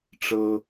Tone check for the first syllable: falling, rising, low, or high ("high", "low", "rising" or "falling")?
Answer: high